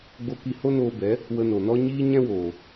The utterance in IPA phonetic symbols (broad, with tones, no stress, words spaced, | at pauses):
ɡ͡bo˧ ki˧ho˦noː˧bɛ˨˦ | wə˧no˨nɔ˦ ɲiː˦ɲɛ̃˦woː˨